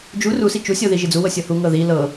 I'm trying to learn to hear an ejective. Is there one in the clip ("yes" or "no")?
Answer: no